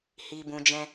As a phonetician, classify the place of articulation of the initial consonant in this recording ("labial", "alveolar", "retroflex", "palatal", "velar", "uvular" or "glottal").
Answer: glottal